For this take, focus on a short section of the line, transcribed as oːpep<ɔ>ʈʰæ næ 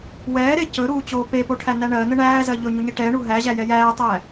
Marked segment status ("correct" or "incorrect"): incorrect